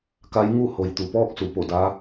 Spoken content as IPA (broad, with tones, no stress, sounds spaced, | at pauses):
k a˧˥ j ŋ u˥˨ h o˩ j t̪ u˩ p ɔː˥˨ k̚ s u˩ p o˧˩ d a˧˥